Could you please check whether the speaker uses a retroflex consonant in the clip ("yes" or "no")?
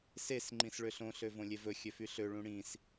yes